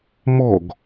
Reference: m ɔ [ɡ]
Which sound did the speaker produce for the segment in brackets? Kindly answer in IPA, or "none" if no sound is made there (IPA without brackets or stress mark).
ɡ